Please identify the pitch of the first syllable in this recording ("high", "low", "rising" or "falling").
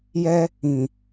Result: high